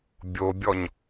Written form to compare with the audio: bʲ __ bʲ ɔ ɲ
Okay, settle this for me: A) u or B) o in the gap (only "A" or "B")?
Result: B